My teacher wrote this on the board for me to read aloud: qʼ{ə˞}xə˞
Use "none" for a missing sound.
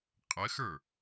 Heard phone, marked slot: ə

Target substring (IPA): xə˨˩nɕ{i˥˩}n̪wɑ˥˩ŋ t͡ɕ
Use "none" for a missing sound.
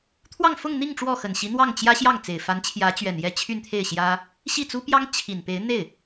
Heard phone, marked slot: i˧˥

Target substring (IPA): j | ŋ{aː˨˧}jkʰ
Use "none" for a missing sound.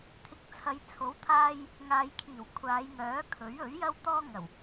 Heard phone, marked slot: aː˨˧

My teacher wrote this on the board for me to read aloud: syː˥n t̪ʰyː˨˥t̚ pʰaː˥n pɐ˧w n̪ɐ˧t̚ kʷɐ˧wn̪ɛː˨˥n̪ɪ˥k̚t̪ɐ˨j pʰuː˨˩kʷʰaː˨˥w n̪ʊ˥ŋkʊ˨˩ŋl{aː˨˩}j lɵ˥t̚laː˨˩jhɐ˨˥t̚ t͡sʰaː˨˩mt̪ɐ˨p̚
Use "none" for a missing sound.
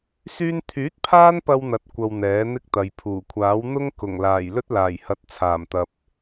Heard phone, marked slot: aː˨˩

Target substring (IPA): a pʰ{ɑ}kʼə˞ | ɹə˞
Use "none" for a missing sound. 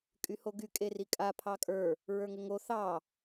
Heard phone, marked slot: ɑ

